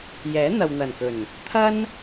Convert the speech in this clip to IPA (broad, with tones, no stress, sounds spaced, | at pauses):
j ɛː˨˥ n̪ ɐ˨ w n̪ ɐ˨˩ n k ɵ˨˩ n | t̪ʰ ɐ˧ n